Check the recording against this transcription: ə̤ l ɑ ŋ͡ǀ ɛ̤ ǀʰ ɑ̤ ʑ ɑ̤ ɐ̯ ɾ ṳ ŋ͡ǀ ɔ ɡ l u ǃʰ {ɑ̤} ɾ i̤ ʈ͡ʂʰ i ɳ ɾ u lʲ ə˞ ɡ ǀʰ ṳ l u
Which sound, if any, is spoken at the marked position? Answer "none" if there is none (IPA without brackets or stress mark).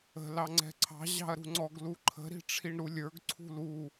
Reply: ə̤